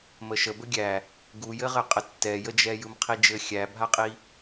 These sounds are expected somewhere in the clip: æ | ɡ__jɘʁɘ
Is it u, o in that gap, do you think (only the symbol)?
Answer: u